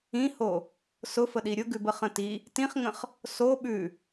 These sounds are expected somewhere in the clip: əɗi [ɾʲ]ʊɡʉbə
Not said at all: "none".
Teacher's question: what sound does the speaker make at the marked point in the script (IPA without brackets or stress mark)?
ɾʲ